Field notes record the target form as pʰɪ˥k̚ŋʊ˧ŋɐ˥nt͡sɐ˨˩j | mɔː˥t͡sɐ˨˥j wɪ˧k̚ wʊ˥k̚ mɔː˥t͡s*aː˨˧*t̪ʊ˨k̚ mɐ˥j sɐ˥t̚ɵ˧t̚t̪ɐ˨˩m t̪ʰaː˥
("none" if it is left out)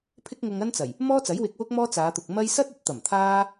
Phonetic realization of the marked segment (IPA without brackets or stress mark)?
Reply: aː˨˧